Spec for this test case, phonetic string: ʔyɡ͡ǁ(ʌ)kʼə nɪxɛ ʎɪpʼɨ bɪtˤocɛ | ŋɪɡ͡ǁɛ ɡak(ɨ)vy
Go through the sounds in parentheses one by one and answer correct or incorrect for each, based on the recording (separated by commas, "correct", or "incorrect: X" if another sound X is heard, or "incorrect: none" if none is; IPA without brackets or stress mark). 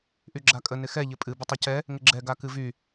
incorrect: a, correct